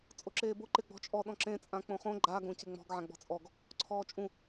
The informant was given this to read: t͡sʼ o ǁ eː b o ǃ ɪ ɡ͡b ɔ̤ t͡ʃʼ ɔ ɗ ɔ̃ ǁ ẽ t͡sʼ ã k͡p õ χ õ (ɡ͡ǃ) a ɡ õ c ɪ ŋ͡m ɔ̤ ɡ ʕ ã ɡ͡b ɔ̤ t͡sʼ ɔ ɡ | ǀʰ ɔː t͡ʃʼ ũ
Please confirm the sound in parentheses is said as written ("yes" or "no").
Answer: yes